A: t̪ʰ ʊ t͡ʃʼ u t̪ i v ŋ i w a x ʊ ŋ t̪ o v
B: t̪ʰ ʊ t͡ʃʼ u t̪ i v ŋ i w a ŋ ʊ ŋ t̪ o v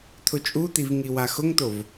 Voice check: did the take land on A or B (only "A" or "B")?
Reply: A